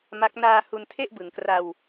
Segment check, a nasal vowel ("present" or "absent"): absent